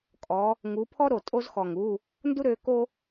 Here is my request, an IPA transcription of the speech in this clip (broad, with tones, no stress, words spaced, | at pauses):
kʼɔ˨˦ | ŋu˨˦pʰɔ˥ ɾo˨˩tʼo˥z xɔ˨˩ŋu˧˥˧ | ndu˥ɾø˨˦ko˥